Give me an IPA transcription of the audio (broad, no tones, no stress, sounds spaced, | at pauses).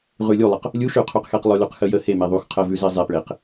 ʁ ʉ lʲ u lˠ ə q | lʲ u ʃ ʉ qʰ ʉ q x e q lˠ ʉ l ʉ q x ə j ə h e m e ðˤ u x qʰ ə v ʉ z e zˤ e p ɭ e q